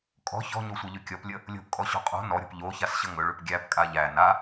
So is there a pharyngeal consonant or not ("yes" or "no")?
no